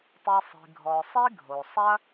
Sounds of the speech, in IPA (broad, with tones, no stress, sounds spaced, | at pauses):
tˤ i˨ sˤ i̤˩ ɡʱ ɔ˩ sˤ i˥ ɡʱ o˩ sˤ ɐ˥